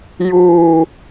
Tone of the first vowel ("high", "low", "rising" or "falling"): high